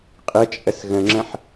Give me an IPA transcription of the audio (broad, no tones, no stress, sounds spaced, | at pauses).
qʼ ɘ t͡ʃʼ ə s ɣ ə̃ ŋ͡ǁ ə̃ ħ